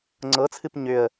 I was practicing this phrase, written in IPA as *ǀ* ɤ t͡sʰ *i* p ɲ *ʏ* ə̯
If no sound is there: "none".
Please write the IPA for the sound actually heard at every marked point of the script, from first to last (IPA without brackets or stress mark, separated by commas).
ŋ͡ǀ, ɨ, ʏ